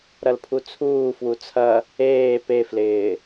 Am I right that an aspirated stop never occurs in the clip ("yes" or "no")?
no